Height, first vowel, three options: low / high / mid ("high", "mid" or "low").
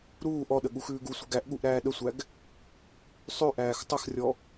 high